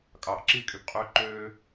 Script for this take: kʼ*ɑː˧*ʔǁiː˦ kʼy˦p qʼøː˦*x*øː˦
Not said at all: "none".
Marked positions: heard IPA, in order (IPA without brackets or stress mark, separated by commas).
ɑː˧, ǃ